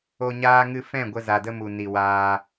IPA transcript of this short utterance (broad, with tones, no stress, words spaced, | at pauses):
o˦ɲaː˦ŋɨ˦ fɛ̃˦˨ɡʷə˧za˨də˧ mu˨ni˨ waː˧